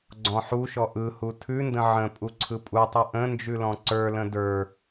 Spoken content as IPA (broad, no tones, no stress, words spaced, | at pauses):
ɡ͡ǀɔ̃ħuʃɔ ʔɯhu tʰʉndə̃ ʕə̃ pʼuǀʰɯpʼutˤɯ ʔə̃ nd͡ʒʉlɔ̃ǀə˞lə̃ də˞